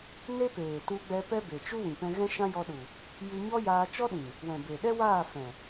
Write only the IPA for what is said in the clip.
ne˦peː˨ tu˧ɡ͡bɛ˧pɛ˦be˨ t͡ʃu˦wĩ˨ pɛ̃˧ ɣɛ̃˦ʃã˦jɔ˧ɗu˨ | jɨ˧ɲɔ˦ jaː˧t͡ʃɔ˦ɗĩ˨ | wɛ̃˨be˨ɗɛ˦waː˦˨ fɛ̃˨

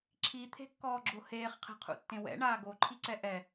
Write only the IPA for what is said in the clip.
ǁʰit̪ʰe̤kːɔːɡ͡ǁo heːχqʰe̤qʰṵtːẽ wɛ̰ɳaː ɡoǃʰiǀɛ ʔɛ

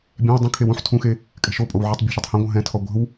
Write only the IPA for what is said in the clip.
bʲɛ̃w dˤɛ̃kʰew ũħ tʰũxe | kʼɛ̤ʃopʼow ʕitˤbʲa̤ʃitˤhɛ̃ ɡʷə̃ɦɛ̃tʰɔ ɡʷə̤w

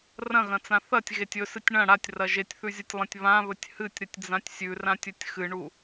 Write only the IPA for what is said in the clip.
rɐ̃ɣɐ̃t͡sã θɐtʲɣetʲ ɵsɨtʲ ɳɐ̃ ɽatʲrɐ ʒetʲθʉzʲɐtʲlˠɐ̃tʲ βãβɵtʲ hɨtʲɾɨtʲd͡zãtʲ sʲʉrãtʲɵtʲ xɨɳu

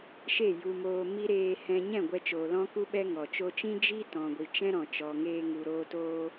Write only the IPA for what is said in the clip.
ʃe˦˨ju˧moː˧ mi˦ ɾeː˧hɛ̃˧ ɲɛ̃˦˨ɡʷɛ˧t͡ʃoː˨ lɔ̃˦ku˦ ɓɛ˦ŋɔ˨ t͡ʃo˧t͡ʃĩ˦ d͡ʒi˦tɔ̃˨ɡʷi˨ t͡ʃɛ̃˦ɾɔ̃˨t͡ʃɔ˨ ŋeː˧ŋu˨ ɾoː˧toː˧

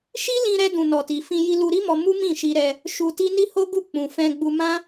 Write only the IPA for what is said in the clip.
ʃi˦lĩ˧ɾɛ˧dũ˨ nɔ˨ti˨ fĩ˧ji˧ lu˧ɾi˦mɔ˧ mu˦mĩ˦˨ʃi˧ɾɛ˧ | ʃu˧ti˦ ni˦ho˦ɡu˦˨ k͡pũ˧ fɛ̃˧ɡ͡bu˧ mã˦

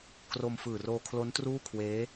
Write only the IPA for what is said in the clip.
kro˧mfɯː˨˩roː˧ kʰlo˦˥ntruː˥˩kʰweː˦˥

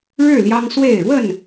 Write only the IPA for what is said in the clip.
ɻɻ̩˥˨ ljɑ˦ŋswe˥˨ɪ̯ ɻwə˥˨n

